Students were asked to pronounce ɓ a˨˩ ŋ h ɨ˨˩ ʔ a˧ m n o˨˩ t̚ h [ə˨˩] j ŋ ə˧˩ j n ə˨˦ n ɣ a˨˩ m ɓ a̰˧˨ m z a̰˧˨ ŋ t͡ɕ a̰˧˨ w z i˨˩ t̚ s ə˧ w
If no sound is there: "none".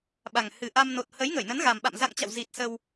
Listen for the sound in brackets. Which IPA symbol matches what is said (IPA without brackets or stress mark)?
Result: ə˨˦